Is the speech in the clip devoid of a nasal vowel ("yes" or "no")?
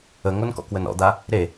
yes